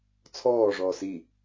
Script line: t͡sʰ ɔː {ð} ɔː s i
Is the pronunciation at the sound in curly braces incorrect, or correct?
incorrect